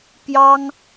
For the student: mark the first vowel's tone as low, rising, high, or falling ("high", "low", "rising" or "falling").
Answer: high